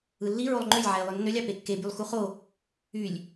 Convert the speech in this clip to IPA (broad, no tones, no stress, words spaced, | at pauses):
ɯlːi ɹolˠŋ͡ǃølʲ ʕæi̯lˠønːølʲ ɑpekːe bylˠxuχo | ylʲ